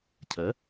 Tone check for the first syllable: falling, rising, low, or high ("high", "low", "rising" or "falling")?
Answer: rising